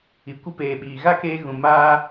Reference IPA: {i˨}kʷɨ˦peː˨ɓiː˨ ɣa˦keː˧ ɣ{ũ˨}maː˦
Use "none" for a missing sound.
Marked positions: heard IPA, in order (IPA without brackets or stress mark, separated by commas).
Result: i˨, ũ˨